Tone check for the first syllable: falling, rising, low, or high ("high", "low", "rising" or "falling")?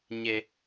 high